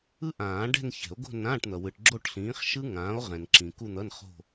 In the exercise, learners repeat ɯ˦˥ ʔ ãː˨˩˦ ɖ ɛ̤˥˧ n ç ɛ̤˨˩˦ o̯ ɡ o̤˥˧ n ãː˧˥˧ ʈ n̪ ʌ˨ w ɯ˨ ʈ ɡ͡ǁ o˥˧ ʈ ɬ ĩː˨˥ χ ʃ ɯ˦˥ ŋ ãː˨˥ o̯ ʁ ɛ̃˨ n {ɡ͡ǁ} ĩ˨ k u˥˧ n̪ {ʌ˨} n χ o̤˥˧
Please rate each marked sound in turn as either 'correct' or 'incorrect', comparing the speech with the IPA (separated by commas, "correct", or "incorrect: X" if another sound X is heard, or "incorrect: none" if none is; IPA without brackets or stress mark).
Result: incorrect: ǁ, incorrect: ʌ˧˥˧